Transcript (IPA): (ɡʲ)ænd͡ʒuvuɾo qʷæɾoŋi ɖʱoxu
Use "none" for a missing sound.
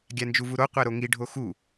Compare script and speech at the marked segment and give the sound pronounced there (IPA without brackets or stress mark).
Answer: ɡʲ